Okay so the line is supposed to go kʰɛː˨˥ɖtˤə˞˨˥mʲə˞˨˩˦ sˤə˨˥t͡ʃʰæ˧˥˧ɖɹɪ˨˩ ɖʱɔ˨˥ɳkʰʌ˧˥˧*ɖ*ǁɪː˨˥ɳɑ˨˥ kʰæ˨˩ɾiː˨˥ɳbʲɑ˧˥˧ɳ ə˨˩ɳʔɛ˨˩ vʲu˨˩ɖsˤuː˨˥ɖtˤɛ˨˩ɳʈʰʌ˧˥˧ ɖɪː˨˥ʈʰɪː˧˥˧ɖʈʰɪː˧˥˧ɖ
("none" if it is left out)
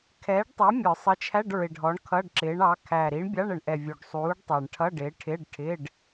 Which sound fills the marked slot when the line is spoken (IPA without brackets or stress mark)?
ɖ